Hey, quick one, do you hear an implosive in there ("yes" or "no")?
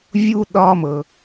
yes